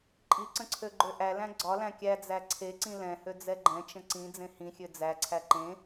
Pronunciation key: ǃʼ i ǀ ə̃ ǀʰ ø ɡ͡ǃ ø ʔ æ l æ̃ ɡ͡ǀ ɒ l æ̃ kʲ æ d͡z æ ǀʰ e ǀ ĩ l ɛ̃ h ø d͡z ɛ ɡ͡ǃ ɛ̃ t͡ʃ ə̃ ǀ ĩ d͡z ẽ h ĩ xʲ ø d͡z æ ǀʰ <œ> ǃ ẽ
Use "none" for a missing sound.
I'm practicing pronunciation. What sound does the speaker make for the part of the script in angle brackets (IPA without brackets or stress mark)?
æ